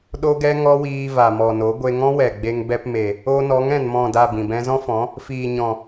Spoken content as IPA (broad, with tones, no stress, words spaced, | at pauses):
ɗo˦ɡɛ˦ŋɔ˦wiː˧ va˨mɔ˨no˨˦ ɡʷe˧ŋɔ̃˦wɛ˨ɡ͡be˧ŋ bɛ˧pme˨ | o˧nɔ˨˦ŋɛ̃˨n mɔ̃˦˨da˦˨bĩ˨bɛ̃˦ zɔ̃˦fɔ̃˨˦ | fiː˨ɲɔ̃˨